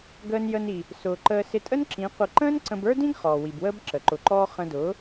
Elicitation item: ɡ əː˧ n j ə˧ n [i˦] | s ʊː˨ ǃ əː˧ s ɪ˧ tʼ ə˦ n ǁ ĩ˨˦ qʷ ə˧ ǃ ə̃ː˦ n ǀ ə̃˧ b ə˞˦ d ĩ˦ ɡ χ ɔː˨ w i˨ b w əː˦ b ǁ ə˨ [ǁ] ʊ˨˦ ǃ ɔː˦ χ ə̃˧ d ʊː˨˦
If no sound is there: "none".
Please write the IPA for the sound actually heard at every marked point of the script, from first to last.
i˨, ǃ

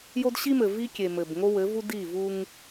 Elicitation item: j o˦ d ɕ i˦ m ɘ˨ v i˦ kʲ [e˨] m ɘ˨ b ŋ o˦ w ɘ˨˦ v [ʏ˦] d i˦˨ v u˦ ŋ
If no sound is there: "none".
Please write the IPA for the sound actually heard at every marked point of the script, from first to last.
e˨, u˦

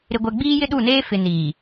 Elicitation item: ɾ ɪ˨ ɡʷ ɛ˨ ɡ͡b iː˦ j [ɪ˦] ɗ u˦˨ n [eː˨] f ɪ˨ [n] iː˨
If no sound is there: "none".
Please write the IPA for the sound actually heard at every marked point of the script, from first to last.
ɪ˦, eː˦, n

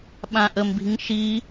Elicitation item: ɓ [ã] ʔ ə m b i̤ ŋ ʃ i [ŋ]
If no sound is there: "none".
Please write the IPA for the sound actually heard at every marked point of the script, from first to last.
ã, none

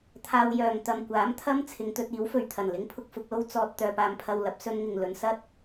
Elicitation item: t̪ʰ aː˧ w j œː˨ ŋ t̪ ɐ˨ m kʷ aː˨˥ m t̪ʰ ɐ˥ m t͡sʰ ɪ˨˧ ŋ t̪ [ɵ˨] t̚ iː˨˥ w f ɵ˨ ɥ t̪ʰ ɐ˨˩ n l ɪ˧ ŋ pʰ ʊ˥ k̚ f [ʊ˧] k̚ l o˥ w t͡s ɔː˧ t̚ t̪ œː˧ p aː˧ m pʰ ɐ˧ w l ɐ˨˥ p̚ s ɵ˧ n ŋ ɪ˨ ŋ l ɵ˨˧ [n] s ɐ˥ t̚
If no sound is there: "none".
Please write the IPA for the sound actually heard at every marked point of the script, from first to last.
ɵ˧, ʊ˨˥, n

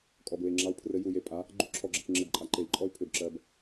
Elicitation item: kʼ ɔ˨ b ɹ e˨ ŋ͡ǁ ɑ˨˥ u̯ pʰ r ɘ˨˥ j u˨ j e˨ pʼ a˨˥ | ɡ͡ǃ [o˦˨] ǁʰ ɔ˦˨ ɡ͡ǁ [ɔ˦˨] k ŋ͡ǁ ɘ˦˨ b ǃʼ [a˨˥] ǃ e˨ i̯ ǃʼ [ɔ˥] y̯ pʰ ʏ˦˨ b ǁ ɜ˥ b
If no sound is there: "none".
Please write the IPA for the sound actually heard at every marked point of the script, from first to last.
u˦˨, ə˦˨, a˨˥, ɔ˥

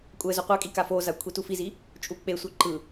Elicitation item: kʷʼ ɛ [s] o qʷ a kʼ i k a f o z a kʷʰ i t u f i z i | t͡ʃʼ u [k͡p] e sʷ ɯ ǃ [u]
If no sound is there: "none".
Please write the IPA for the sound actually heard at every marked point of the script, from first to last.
z, k͡p, ɯ

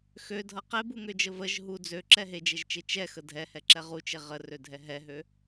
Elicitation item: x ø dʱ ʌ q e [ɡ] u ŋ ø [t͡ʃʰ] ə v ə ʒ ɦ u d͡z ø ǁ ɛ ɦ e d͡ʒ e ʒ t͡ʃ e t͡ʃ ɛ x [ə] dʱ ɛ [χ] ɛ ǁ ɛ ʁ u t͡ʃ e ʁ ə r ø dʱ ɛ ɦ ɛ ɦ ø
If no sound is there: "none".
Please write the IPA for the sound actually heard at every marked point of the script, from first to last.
b, d͡ʒ, ə, h

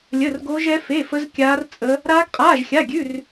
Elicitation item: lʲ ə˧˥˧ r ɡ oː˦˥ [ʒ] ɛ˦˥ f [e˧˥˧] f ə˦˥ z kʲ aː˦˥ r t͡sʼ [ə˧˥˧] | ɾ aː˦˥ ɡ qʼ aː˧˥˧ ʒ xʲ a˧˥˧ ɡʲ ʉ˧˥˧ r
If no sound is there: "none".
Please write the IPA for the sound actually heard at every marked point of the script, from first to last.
ʒ, e˧˥˧, ə˦˥

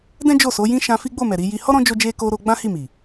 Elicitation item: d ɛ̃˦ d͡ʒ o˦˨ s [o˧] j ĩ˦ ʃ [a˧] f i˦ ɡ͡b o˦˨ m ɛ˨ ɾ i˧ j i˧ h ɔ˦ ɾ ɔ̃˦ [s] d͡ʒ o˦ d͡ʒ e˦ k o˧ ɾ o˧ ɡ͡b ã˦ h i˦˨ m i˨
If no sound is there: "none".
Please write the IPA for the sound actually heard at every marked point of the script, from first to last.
o˨˦, ã˧, none

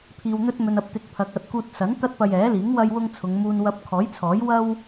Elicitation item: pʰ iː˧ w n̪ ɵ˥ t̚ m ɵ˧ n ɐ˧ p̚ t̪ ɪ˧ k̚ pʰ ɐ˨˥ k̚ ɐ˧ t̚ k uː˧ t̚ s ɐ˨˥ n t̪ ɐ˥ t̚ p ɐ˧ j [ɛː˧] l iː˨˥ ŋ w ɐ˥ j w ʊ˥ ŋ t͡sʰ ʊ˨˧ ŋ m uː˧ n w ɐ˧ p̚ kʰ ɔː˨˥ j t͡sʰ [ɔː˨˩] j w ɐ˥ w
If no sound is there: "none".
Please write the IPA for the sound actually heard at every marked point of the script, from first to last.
ɛː˨˥, ɔː˨˥

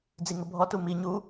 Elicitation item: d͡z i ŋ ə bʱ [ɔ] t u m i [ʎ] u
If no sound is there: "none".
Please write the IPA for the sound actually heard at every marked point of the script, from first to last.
ɔ, ɲ

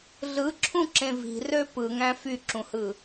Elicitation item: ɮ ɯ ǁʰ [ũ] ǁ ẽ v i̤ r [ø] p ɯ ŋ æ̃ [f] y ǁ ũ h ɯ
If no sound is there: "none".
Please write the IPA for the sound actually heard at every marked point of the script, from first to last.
ũ, ø, f

